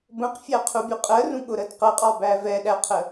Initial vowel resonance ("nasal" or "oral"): nasal